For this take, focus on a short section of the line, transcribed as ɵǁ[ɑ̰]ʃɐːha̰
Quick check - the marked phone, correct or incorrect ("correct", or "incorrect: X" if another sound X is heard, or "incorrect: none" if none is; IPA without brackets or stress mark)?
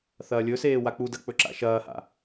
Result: incorrect: a̰